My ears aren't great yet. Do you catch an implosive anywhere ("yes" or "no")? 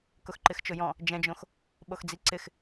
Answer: yes